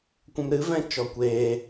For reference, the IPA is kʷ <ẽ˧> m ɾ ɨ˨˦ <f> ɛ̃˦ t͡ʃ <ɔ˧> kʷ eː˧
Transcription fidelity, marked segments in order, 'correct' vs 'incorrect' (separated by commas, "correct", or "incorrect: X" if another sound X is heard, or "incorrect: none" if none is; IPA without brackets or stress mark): incorrect: ɛ̃˧, incorrect: v, correct